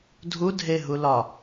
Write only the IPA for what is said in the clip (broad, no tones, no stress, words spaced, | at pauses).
dʱudʱeɦulɒ